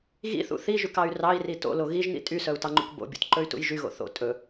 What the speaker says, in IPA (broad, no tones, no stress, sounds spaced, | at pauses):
ɣ ḭ θ ṵ θ i ʒ ʉ k ɑ y̯ r ɑ i̯ r i t o̰ l o ɣ i ʒ n ḭ tʼ y s œ u̯ t ɑ ŋ͡ǃ ṵ k b o̰ bʲ o̰ t ǃ ɵ y̯ t ṵ j ʒ y ɣ o̰ θ o̰ tʼ ɵ